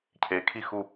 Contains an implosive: no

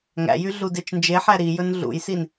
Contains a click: no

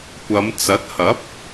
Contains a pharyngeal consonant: no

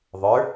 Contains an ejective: no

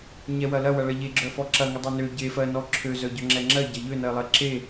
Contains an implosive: no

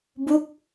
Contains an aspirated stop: no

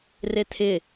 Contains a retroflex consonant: no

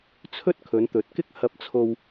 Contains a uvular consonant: no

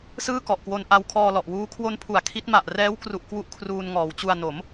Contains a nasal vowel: no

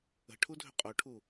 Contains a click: no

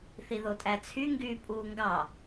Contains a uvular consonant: no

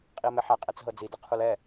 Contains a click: no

